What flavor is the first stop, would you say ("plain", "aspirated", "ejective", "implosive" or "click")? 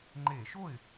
click